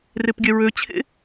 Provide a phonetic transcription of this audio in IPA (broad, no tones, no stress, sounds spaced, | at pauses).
r e p ɡʲ ɛ ɹ ø t͡ɕʰ ḛ